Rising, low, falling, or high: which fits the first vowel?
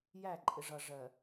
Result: falling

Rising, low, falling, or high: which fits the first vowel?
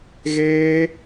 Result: high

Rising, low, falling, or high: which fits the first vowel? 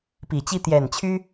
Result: low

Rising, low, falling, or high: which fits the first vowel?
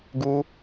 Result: high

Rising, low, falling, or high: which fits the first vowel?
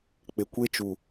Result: low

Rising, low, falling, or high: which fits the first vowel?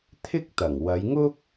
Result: high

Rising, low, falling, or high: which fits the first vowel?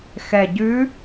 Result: low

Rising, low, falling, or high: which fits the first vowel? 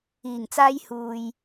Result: low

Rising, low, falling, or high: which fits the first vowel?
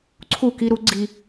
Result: falling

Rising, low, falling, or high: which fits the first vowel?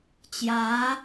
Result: rising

